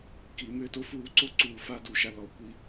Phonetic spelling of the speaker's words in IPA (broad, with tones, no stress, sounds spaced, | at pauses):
k i˩˧ m ʏː˧˩ t o˥ f uː˧ ǀ o˥ ǀ uː˧˩ f a˥˧ d u˧ ʃ a˥˧ l ɔ˧˩ kʷ i˥